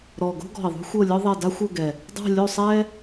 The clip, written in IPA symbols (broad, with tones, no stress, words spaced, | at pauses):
ɾɔ˨˩ ɡo̤˥ɡɔ̤˨˩i̯ ðˤṳ˥xʷɤ˥˨lʲɔ˥ðˤɛ˥˨ da˥xʷɤ˥˨ɡɛ˨˩ | dˤa̤˥˨lʲo˥˨sˤɛ˥